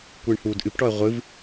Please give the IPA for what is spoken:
kʷɨːɳhuːdʔɨpʈɔə̯ ʁʷɨv

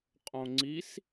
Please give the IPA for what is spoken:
qʼõŋ͡ǀis

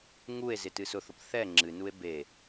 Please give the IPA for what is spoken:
ŋue̯ zɪtɨsʊθʊp θɛ ŋ͡ǁɨnue̯ be

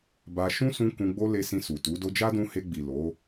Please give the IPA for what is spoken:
ba˧ ʃũ˦sũ˧ kũ˧ɡ͡bo˦le˧sĩ˧ su˨tu˨˦ do˧d͡ʒa˦dũ˧ he˧ɡ͡bi˨ lo˨˦

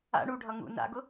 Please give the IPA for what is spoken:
a̰ ɳuɖʱʌ ŋṵ na̰ɡʊ

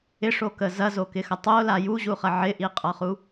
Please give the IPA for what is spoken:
ɪʂokə zɐzokɪxɐ tˤola juʑuχɐ ʕɪʔiqʼʌχu

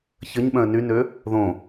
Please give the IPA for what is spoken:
çəɲɓœ̃ə̯ nynø | ðõ

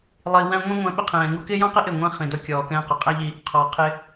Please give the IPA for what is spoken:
lˠi˨ wæ̃˧ ŋʷĩ˦ ŋʷæ̃˧ɓɪ˧ qʰɛ̃ː˨ŋu˧kɪː˦ jɔ̃˦qɪ˦ ʔɪ˦˨ŋʷɛ̃˦ χĩ˨dɔ˧kʲɔː˨ kɛ̃ː˧qʊ˨qʼæ˦ʎi˧ | qʰɔ˨qʰɪ˧

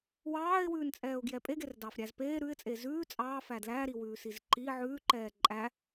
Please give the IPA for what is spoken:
wɑːɪ̯wʉːnt͡sʼɛːʊ̯ɡjɛ pʼeɡerdɑːfɾʲæz peː ɾʉɪ̯t͡sʼe zʉː t͡sʼɑːfæ dlæɾiwʉːsiz ǃi ʕʉːǃɛː ǃʼæ

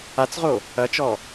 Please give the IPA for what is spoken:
at͡sʁo | ɐt͡ʃɔ

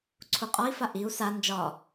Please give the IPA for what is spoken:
ǀʰuqʼɒi̯fa ʔiu̯ sa nd͡ʒɒ

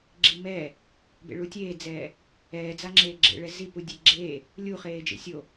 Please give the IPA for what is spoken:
ɡ͡ǁimɛː | bḛɭutʲeːd͡zɛː | ɛːd͡zaŋ͡ǁeː ɡ͡ǁḛɭɛ zipu dʲeɡ͡ǁeː | lʲuχeːd͡ʒḛ sʲo

